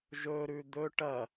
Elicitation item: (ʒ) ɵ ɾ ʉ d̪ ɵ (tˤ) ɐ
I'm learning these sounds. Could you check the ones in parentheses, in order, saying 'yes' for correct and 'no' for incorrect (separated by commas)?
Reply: yes, no